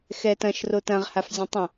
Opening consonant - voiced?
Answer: no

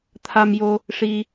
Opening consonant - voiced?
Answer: no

